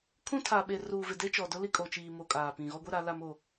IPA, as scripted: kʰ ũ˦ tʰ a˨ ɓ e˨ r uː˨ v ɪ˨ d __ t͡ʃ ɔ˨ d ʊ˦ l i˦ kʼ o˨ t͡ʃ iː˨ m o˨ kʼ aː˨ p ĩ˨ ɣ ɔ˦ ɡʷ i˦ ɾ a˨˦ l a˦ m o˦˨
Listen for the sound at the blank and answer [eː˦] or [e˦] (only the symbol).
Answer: e˦